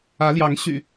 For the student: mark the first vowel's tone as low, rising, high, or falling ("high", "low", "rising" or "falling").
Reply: rising